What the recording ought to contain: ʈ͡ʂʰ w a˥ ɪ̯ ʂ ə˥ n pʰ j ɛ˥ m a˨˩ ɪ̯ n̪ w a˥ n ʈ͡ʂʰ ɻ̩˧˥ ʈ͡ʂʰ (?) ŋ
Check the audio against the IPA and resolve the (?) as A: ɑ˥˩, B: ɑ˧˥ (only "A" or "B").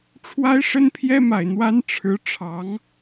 B